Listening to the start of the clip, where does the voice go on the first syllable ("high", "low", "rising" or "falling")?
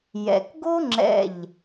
low